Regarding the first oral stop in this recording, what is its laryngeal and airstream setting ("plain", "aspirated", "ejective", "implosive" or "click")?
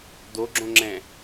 plain